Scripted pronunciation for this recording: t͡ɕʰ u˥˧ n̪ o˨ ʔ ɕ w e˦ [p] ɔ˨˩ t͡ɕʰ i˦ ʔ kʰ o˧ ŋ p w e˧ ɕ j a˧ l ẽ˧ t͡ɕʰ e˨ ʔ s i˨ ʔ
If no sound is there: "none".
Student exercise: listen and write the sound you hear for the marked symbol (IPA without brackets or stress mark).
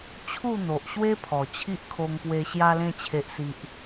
pʰ